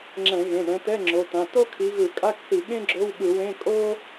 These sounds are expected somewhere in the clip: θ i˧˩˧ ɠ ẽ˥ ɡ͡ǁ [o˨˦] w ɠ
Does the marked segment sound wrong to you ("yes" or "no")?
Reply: yes